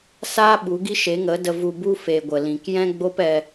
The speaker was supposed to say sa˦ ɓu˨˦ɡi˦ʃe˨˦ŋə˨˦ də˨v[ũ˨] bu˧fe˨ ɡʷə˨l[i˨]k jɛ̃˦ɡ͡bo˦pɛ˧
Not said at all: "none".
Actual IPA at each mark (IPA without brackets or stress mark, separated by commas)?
u˨, ĩ˨